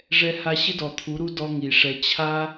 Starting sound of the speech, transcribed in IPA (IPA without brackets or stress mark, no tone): ʐ